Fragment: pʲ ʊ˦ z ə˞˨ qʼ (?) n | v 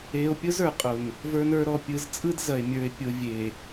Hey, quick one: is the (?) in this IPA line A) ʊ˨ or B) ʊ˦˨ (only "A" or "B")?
A